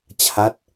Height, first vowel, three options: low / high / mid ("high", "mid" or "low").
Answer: low